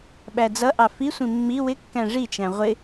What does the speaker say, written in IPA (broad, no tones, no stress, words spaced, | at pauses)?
ɓæd͡zʌʔɑ fisʷĩ mːi wɪkːæ̃ ʐit͡ʃæ̃ ʁʷɪ